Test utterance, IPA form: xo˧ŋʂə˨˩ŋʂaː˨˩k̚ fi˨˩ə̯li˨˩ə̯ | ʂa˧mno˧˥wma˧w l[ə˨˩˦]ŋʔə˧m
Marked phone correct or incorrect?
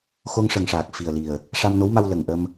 incorrect